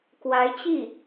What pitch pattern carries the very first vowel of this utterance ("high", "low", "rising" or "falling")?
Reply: rising